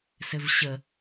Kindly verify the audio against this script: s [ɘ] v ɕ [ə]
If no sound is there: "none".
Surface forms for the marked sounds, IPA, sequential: ɘ, ə

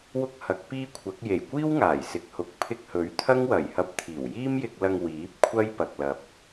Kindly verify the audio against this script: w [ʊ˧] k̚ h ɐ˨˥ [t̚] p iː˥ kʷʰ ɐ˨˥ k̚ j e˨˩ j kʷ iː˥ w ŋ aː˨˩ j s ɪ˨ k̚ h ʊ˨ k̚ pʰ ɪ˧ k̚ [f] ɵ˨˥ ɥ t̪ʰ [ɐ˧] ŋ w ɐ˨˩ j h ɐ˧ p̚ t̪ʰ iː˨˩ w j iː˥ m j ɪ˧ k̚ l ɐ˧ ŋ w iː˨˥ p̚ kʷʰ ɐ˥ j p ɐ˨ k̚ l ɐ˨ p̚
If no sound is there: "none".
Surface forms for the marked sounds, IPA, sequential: ʊ˥, k̚, h, ɐ˥

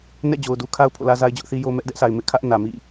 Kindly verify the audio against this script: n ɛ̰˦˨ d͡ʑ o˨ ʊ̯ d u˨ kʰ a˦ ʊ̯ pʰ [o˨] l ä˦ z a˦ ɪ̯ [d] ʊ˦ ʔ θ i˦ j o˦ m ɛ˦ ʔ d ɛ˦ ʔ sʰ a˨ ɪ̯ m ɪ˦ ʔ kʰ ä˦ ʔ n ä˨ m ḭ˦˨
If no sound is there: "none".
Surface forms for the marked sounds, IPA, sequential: o̰˦˨, d͡ʑ

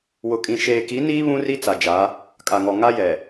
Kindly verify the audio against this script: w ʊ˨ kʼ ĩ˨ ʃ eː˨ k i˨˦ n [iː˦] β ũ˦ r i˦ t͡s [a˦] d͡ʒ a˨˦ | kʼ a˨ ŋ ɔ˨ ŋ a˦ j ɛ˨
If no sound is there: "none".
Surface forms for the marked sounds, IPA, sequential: iː˦, a˨

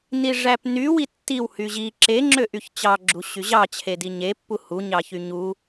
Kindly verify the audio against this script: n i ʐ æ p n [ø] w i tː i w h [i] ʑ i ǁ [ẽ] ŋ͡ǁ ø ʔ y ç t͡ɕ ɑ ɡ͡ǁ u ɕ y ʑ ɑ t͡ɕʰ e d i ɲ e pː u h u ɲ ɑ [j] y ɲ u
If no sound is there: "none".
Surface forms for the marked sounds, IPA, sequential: y, y, e, ç

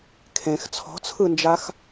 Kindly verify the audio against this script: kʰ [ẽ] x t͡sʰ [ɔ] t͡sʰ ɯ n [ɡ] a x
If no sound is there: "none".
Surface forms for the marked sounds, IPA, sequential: ẽ, ɔ̤, d͡ʒ

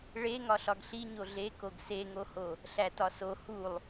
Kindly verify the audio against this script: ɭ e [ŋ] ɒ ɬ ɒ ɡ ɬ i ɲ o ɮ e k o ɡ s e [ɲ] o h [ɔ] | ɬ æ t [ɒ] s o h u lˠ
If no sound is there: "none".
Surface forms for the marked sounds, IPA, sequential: ŋ, ŋ, o, ɒ

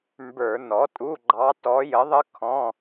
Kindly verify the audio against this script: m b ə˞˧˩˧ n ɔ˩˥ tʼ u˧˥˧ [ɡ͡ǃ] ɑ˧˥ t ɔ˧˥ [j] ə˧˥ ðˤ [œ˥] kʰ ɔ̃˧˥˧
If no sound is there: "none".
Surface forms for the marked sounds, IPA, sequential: ɡ͡ǃ, j, ə˥

